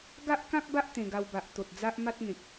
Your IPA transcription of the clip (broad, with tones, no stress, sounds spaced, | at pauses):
ɡ a˦ ʔ k ã˦ k̚ b a˦ ʔ t̪ ẽ˧ ɡ a˧ w b a˨ ʔ t̪ o˨ t̚ d͡z a˦ ʔ m a˦ t̚ ŋ ẽ˨ k̚